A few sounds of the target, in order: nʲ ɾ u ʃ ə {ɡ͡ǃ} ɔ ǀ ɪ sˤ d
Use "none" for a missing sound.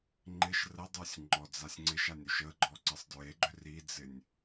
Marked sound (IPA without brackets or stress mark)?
ɡ͡ǃ